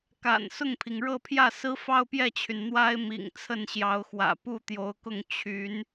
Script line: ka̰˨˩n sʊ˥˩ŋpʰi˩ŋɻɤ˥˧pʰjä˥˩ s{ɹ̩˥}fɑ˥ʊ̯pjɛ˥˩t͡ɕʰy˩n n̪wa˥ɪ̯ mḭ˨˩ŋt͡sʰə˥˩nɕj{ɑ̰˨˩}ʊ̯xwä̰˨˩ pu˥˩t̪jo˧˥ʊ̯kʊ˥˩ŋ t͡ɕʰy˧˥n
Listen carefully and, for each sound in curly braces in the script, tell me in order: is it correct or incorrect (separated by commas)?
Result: correct, incorrect